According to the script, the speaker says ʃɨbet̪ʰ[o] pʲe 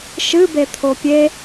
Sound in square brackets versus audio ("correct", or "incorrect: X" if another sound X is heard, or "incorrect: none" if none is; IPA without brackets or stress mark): correct